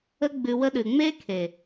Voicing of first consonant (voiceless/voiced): voiced